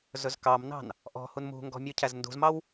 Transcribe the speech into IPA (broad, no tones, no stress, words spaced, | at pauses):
zɵzkɑmnɑ̤n | ʔɔ̤ hunmṳŋɡɔ̤ mʲucʰæzndṳzmɑw